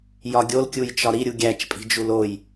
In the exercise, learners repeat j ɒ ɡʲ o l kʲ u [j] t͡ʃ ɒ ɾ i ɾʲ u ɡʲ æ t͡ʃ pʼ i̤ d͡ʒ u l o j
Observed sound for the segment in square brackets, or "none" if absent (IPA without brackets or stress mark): j